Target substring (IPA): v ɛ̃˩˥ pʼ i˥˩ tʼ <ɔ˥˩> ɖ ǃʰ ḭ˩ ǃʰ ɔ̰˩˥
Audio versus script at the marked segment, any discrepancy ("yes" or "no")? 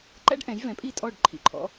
no